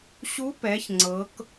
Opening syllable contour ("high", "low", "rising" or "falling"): rising